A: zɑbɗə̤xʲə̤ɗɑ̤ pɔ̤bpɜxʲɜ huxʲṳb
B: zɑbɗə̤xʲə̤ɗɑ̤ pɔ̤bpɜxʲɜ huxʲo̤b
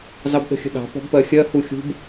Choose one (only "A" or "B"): A